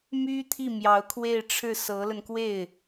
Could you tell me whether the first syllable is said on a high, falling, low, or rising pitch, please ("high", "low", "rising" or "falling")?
high